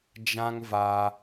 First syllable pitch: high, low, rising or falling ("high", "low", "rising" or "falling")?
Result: high